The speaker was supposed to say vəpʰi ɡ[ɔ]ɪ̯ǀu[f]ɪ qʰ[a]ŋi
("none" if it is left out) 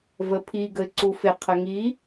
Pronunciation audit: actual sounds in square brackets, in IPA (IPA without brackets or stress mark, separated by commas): ə, f, ə